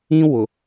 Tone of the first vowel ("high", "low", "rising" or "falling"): high